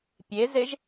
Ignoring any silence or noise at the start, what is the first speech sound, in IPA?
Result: pʲ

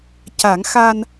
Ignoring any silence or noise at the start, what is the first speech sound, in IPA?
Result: c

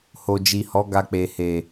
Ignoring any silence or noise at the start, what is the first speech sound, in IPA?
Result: h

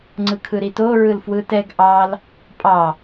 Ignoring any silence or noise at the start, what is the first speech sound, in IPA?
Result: ŋ͡ǀ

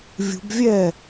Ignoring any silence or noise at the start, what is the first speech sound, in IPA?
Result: vʲ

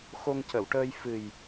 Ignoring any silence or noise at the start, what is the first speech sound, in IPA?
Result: x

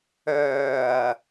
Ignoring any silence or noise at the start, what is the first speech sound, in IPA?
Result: œː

